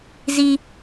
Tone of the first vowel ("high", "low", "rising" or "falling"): high